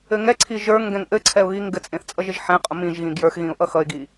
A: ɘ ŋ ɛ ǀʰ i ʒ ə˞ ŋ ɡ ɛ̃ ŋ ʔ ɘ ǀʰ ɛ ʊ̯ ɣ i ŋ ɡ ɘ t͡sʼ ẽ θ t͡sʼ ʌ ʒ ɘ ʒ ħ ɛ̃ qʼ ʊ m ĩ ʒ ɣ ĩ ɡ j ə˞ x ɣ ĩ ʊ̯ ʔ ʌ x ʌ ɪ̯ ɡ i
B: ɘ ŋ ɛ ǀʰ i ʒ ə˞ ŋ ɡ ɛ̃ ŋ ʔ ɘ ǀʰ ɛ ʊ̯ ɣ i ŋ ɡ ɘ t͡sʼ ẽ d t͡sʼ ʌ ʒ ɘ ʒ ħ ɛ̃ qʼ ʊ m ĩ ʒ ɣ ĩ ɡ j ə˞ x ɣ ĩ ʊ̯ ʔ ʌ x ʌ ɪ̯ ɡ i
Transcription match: A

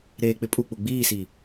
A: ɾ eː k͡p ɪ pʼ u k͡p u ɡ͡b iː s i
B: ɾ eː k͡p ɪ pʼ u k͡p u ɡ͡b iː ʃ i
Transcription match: A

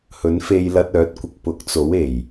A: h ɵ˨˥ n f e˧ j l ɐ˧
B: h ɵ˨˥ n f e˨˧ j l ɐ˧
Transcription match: A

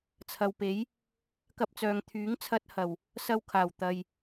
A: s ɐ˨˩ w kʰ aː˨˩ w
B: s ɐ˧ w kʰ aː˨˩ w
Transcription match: B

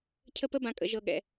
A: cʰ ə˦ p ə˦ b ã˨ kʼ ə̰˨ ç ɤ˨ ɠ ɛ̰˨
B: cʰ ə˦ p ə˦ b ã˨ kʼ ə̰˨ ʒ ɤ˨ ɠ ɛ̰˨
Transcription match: B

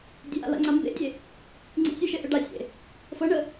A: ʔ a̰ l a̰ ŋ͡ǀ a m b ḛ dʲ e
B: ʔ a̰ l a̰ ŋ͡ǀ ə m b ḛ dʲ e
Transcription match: A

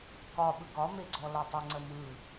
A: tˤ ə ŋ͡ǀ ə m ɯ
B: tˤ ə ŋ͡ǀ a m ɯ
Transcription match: A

